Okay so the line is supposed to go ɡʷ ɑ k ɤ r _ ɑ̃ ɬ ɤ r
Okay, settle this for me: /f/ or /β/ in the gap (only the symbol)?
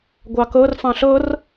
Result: f